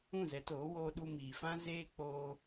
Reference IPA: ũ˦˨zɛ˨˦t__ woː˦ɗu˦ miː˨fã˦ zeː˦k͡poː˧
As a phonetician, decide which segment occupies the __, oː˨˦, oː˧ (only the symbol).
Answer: oː˨˦